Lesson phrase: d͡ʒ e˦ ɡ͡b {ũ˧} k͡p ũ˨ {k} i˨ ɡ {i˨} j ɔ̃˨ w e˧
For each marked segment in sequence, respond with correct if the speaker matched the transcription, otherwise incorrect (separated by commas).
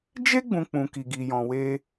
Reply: correct, correct, correct